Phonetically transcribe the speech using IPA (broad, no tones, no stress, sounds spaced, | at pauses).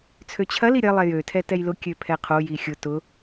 t͡sʰ ø t͡ɕʰ ɐ l i ɾʲ ɐ lˠ ɛ j ø tʰ ɛ t ɛ j l ʊ kʲ ø pʰ ɛ qʰ o j i xʲ ʊ t ʊ